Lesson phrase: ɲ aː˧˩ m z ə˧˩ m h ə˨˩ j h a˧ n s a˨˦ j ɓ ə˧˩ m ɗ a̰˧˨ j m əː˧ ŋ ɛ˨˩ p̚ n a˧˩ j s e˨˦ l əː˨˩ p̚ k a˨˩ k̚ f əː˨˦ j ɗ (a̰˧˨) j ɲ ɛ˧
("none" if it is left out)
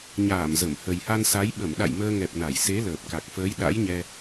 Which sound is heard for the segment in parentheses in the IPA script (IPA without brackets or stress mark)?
a̰˧˥